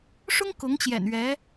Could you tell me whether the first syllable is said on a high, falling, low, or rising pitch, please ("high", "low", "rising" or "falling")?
high